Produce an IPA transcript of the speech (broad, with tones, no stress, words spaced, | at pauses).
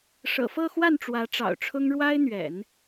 ʂɤ̰˨˩fɤ˥˧xwa˥˩n ʈ͡ʂwä˧˥ʈ͡ʂɑ̰˨˩ʊ̯ʈ͡ʂʰʊ˥ŋ ɻwa˥ɪ̯n̪ɥɛ̰˨˩˦n